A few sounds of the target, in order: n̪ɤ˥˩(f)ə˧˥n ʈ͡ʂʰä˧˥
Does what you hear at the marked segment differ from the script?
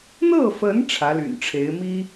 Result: no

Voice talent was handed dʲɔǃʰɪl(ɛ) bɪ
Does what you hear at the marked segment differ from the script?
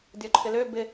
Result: yes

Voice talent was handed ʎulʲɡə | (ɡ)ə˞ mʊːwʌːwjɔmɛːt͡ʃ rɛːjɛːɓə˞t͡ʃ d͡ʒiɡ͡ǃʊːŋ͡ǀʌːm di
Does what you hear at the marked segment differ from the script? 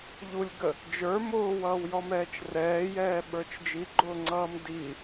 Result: yes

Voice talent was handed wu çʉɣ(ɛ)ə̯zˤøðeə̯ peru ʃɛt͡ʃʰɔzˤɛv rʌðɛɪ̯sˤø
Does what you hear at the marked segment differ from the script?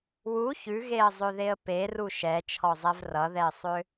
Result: yes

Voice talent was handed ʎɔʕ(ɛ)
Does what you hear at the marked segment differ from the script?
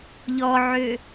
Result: yes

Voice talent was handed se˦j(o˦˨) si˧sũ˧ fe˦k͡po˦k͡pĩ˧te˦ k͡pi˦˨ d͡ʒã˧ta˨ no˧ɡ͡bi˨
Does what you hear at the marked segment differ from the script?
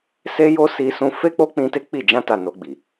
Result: yes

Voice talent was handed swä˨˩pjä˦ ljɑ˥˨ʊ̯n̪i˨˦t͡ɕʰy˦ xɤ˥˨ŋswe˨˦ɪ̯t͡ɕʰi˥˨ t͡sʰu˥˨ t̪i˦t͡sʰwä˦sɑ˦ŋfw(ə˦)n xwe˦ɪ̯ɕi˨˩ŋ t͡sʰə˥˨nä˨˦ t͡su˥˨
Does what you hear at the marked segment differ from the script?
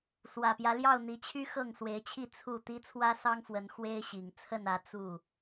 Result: yes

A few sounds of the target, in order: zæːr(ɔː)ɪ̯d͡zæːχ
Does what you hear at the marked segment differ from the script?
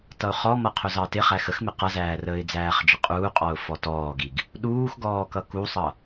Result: yes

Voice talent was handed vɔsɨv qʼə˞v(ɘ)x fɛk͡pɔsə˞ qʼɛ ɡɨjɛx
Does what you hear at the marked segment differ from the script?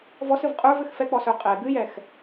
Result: no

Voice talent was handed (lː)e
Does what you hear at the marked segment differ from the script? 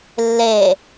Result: no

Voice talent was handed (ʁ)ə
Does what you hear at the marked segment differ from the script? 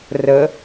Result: yes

